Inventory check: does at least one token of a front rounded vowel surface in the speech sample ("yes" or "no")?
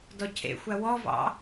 no